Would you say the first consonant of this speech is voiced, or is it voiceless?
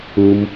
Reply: voiced